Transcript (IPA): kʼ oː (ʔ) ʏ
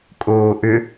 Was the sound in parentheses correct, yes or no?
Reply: yes